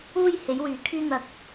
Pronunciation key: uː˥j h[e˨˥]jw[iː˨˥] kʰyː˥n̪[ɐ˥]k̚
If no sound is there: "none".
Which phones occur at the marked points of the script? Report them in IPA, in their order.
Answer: e˨˥, yː˨˥, ɐ˧

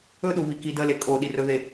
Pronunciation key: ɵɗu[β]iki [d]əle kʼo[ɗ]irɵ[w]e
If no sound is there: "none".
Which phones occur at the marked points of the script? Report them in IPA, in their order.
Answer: β, d, ɗ, ð

